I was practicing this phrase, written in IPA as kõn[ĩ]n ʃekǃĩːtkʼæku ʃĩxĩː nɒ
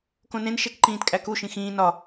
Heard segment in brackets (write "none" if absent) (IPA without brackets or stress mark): ẽ